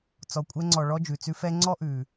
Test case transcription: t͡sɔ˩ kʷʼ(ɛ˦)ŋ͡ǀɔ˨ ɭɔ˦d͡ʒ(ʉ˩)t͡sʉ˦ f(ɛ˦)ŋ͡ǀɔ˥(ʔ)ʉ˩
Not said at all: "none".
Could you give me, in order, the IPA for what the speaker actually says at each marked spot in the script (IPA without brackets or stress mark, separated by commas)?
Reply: ɛ˦, ʉ˩, ɛ˦, ʔ